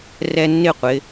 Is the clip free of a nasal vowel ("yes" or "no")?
yes